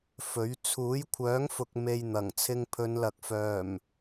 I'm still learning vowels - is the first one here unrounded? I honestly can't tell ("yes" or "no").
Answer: no